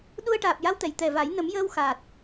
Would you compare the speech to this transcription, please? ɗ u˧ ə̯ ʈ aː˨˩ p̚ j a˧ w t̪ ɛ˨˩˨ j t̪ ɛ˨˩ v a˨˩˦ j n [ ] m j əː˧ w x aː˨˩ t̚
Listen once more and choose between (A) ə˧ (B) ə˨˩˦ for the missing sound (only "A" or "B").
B